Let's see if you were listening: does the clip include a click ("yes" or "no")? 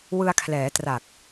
no